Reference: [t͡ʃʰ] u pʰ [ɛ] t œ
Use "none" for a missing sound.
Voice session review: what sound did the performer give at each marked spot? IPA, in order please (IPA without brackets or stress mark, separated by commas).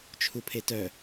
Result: t͡ʃʰ, e